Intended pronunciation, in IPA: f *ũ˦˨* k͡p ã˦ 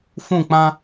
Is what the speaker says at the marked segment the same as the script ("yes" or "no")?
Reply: yes